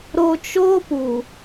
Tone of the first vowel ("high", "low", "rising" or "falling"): low